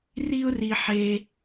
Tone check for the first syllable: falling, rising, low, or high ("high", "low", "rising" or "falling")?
high